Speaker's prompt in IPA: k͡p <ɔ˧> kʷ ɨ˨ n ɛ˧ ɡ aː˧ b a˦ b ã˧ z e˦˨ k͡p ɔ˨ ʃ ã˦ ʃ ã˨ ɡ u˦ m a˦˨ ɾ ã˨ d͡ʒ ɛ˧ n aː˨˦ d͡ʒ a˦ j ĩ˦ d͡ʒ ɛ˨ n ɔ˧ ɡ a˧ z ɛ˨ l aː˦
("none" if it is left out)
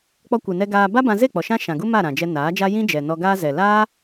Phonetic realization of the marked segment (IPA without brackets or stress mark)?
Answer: ɔ˧